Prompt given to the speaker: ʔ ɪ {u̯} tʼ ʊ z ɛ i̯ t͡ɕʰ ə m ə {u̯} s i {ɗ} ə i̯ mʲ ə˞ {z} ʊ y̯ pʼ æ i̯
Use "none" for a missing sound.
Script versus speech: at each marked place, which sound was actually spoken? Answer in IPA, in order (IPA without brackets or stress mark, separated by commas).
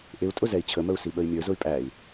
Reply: u̯, u̯, ɓ, z